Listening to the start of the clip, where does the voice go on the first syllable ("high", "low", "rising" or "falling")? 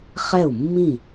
falling